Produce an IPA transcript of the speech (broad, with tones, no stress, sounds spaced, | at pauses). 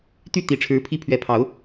t̪ y˥˨ t̪ i˨˦ ʈ͡ʂʰ ɻ̩˨˦ pʰ i˦ pʰ ɥ ɛ˨˦ pʰ ɑ˨˦ ʊ̯